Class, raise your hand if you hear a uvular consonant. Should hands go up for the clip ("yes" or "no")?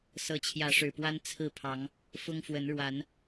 no